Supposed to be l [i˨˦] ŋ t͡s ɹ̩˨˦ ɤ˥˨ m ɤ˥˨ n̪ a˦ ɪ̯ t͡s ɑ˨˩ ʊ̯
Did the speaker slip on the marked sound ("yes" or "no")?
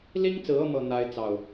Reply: yes